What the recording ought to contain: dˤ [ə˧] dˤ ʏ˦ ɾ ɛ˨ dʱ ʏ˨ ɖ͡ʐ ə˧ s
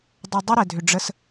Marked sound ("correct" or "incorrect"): correct